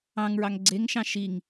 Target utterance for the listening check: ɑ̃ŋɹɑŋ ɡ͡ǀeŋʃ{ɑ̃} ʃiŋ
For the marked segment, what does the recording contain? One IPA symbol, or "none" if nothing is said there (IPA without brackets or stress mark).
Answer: ɑ̃